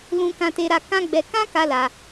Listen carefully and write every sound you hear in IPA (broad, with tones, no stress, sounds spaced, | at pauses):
l ũ˦ k ã˦ t e˦ ɾ a˦ k ã˦ ɡ͡b ɛ˧ k ã˦ k a˧ l a˧